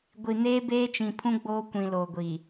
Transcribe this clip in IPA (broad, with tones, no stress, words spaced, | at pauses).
ɡʷi˨neː˦ beː˦t͡ʃĩ˨pʰũ˦ ɡ͡boː˦kʷĩ˨loː˨ɡʷi˨